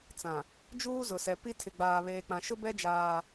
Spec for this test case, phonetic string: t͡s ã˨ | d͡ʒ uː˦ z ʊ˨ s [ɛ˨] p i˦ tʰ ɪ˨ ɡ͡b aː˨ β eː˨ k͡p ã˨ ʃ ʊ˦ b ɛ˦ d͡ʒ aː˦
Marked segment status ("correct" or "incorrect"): correct